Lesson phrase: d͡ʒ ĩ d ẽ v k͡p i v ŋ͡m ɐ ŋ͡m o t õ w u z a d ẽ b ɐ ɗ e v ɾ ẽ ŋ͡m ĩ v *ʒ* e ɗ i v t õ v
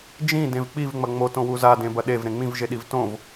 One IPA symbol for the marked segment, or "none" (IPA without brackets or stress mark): ʒ